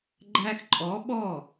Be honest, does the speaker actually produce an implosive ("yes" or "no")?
yes